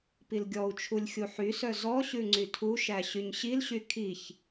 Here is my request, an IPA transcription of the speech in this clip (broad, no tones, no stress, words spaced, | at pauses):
pilɡʲɔu̯t͡ʃʰulʲ xʲuħysœ zɔɕʉ ŋ͡ǀytʰuʃæ ɕyɲɕilɕy kʰiç